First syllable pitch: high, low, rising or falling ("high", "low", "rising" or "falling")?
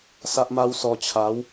high